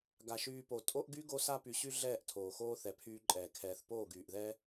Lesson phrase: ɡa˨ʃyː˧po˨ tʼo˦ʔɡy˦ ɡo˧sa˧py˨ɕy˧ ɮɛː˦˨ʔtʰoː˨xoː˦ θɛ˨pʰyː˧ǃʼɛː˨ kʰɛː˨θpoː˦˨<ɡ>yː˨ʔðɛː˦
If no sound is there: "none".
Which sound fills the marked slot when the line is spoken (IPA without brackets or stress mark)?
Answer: ɡ